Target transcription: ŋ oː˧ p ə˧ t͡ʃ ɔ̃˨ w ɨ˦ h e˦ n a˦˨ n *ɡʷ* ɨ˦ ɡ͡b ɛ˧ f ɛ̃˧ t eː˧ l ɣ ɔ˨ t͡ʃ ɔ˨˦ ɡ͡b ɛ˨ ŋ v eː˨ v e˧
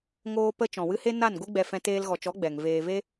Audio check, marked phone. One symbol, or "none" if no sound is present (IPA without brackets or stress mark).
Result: ɡʷ